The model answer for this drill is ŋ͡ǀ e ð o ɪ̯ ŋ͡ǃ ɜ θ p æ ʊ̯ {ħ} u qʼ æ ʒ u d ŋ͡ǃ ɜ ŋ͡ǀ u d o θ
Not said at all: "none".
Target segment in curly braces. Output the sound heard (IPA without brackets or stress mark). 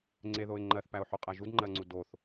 ħ